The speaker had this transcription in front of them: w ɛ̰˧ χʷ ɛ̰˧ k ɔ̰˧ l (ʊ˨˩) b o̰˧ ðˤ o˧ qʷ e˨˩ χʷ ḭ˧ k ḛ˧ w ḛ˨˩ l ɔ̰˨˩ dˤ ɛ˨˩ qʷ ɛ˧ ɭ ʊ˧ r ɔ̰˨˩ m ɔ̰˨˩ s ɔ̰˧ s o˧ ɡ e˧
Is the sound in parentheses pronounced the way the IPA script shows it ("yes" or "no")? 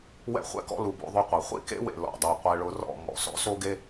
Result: no